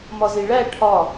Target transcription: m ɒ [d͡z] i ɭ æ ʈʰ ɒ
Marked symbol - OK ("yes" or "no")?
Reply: no